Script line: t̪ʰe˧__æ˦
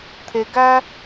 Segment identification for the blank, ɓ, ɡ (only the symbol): ɡ